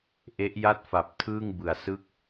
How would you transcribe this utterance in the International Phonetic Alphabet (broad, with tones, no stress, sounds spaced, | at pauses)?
ʔ e˦˥ ʔ j a˥˩ t̚ f a˨˩ p̚ tʰ ɯː˥˩ ŋ b ɯ˨˩ a̯ s ɯ˥˩ k̚